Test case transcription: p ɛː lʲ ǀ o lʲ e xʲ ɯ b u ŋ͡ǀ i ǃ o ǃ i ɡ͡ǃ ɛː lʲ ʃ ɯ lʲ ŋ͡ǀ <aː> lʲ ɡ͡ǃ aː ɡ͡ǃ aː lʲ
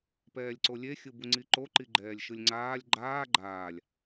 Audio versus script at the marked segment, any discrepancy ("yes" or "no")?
no